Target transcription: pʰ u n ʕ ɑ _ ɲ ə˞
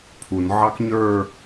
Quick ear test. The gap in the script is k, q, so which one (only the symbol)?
k